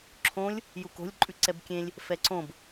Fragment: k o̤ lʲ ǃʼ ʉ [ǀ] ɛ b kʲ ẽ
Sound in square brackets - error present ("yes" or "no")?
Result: no